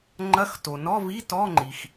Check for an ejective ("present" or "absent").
absent